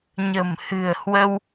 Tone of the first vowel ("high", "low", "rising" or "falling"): low